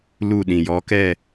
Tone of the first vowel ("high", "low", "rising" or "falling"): falling